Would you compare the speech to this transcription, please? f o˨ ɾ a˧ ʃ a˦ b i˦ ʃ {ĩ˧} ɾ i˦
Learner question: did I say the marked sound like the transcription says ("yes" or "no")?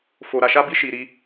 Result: no